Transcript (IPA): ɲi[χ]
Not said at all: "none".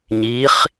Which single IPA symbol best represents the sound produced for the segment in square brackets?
χ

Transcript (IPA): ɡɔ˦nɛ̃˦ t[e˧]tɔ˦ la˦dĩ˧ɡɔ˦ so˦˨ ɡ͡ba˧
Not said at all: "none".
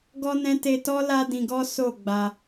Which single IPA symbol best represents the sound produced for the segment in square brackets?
e˧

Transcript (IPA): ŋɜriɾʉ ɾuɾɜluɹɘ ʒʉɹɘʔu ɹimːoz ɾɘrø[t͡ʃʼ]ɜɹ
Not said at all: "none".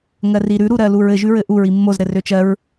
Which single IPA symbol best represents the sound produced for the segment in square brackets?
t͡ʃ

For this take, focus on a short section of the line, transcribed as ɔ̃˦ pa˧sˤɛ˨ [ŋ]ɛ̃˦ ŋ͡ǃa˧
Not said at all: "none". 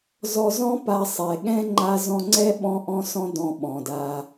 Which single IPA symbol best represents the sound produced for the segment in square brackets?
ɠ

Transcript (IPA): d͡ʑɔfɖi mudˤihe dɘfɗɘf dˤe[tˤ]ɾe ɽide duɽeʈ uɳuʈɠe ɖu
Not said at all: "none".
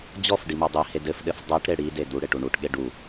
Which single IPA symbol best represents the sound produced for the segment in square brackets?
ʈ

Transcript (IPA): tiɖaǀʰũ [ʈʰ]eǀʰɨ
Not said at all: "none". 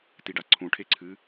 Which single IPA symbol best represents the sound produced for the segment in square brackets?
ʈʰ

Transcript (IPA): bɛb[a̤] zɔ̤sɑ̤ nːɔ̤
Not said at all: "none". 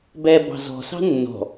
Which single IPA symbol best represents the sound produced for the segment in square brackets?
ɑ̤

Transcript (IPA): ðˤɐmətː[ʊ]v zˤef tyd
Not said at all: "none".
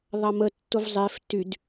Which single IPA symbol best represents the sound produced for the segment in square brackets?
ʊ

